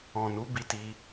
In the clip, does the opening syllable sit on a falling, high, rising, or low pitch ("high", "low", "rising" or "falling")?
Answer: low